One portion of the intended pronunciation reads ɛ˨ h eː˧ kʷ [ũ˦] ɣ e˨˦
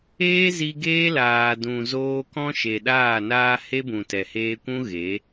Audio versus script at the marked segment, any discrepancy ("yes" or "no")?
no